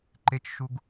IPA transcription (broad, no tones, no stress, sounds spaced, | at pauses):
ǃ e t͡ʃ ʃ u ɡ